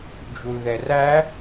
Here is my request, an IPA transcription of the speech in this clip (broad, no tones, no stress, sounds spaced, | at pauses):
d͡ʒ u l ð ɛ r æ